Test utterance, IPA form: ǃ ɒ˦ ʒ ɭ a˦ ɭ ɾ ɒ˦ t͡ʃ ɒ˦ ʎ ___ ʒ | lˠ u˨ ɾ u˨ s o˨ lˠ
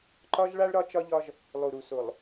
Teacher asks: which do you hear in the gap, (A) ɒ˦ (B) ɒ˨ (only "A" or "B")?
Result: A